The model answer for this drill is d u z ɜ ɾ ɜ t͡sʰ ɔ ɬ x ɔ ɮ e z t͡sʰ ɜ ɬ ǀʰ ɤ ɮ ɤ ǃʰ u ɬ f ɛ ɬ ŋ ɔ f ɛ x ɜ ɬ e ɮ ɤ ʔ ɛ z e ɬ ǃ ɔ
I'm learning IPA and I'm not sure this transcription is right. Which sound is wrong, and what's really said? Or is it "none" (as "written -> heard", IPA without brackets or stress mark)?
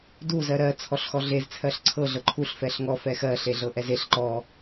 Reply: none